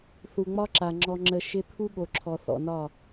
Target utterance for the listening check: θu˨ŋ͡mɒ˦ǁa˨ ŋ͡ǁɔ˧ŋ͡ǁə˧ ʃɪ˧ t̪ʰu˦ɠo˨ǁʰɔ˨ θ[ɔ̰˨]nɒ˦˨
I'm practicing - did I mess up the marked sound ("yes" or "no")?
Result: no